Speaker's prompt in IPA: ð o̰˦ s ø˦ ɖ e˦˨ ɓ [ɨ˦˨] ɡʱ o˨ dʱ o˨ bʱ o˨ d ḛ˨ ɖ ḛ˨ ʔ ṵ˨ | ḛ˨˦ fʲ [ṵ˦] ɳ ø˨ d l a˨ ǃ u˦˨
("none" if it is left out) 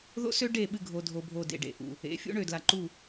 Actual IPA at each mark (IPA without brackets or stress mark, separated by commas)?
ɨ˦˨, ṵ˦